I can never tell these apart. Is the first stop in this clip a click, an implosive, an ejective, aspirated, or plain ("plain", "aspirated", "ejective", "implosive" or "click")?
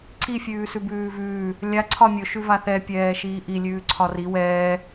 click